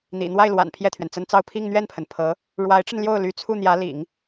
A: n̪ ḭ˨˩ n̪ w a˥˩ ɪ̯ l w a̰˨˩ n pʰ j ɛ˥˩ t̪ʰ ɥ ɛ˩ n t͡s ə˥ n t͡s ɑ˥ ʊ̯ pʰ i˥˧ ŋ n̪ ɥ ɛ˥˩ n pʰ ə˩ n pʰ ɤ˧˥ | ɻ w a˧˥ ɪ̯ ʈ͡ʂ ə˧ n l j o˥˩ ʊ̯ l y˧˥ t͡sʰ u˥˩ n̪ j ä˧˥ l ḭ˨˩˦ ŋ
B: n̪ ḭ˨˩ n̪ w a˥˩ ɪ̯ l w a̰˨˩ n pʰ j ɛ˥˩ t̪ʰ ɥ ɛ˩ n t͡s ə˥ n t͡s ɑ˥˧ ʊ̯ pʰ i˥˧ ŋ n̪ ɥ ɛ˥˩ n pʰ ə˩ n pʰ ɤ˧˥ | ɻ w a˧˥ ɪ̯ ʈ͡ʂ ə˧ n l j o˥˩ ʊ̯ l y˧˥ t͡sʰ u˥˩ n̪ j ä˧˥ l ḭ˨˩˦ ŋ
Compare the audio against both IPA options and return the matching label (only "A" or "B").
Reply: B